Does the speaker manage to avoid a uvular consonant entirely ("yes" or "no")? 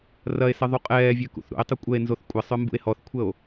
no